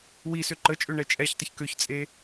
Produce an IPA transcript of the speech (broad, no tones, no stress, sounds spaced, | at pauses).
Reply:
w i s ø ǃ ə t͡ʃʼ ø ɳ ɛ t͡ʃʼ ɛ ç tˤ ə ç k ø ç t͡sʼ e